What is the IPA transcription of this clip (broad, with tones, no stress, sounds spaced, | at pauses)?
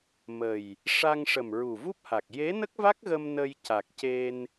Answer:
m ə˨˩ j | ʂ a˧ ŋ ʂ ə˨˩ m ɹ u˨˩ v u˦˥ p̚ h a˨˩ k̚ j e˧˥ n ə˦˥ k̚ v a˦˥ k̚ ɣ ə˧ m n ə˧ j c a˨˩ k̚ c e˧ n